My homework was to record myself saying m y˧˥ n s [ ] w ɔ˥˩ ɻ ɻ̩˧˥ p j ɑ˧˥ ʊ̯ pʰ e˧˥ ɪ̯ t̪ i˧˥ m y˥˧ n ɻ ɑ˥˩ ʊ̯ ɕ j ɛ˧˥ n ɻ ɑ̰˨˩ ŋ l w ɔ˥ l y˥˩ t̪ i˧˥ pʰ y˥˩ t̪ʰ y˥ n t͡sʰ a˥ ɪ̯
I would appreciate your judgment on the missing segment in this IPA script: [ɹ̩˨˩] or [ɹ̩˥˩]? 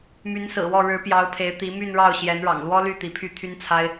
ɹ̩˨˩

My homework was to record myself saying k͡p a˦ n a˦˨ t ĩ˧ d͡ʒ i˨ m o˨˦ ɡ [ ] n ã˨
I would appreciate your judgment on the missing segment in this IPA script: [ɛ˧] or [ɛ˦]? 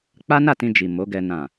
ɛ˧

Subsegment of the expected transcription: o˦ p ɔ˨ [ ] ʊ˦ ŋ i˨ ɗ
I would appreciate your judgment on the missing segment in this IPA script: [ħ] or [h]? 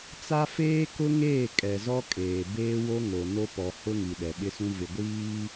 h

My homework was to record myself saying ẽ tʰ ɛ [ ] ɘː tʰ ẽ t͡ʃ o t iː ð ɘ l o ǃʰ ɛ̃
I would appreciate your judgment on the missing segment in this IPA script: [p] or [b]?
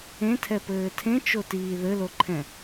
p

